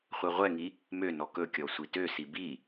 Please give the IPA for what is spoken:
χʷɛʁʷɛŋi | mønɔ kɵkʲɔ sʷitøsi bi

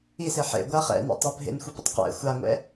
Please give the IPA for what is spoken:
ise ħḛ ɡʷa χɛ̰nɛ̰tˤa bʱḛnxʷipə̰tˤ qɛ̰ xʷaŋʷɛ̰

